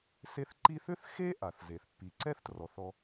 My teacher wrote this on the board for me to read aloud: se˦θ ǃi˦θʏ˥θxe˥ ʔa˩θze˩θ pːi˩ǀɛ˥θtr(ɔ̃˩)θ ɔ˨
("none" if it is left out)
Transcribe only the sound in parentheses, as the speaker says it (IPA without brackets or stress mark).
ɔ˩